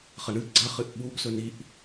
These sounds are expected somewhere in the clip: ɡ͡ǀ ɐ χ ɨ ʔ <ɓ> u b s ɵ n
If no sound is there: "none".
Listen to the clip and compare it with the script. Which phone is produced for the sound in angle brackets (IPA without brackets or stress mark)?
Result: ɓ